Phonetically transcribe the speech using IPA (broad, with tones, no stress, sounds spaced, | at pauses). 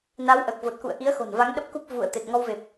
n a˨˦ w ʔ əː˨˩ k̚ v o˨˩ t̚ k ṵ˧˨ ə̯ ʔ i˨˦ ə̯ x o̤˨˩ n v a˨˦ ŋ ɗ ə˦˥ p̚ k u˦˥ p̚ v ṵ˧˨ ə̯ t̪ e˨˩ t̚ ŋ ɔ˧ w v e˨˩ p̚